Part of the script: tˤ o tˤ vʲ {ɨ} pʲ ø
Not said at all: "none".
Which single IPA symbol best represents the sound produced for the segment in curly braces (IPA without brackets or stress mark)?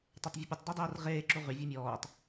e